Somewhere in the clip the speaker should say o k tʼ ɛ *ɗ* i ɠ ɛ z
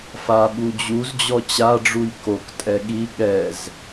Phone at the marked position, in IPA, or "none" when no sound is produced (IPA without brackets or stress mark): ɠ